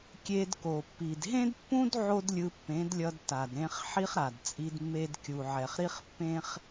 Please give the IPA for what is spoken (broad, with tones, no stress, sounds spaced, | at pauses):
kʲ e˧ d k o˨ pː i˨ d ɦ ẽ˦ d pː ũ˦ d ʕ o˦ d lʲ ɯ˧ pː ẽ˨˦ d lʲ ʌ˧ d t a˨ d ɾ ẽ˧ χ ħ i˦ χ ɾ a˨ d t͡sʼ i˧ d mː e˧ d kʲ u˨ ʕ ɛ˨ χ ɾ i˦ χ pː ẽ˦ χ